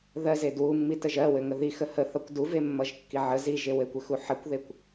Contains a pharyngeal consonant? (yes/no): yes